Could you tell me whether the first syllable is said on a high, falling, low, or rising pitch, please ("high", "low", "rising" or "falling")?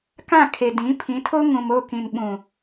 falling